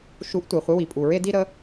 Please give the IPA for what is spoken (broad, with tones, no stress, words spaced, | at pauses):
ʃu˧˥ʔtʷe˩χʷɪ˧˥ wi˩pʼu˩ ɹe˥di˥ ɾə˧˥